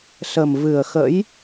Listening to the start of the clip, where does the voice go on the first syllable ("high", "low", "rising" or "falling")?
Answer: low